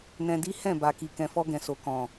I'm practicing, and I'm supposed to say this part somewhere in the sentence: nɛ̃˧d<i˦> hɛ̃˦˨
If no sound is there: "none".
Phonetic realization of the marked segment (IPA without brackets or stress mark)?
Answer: i˦